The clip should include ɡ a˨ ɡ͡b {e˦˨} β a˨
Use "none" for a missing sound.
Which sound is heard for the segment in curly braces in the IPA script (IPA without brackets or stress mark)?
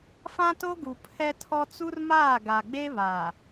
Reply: e˦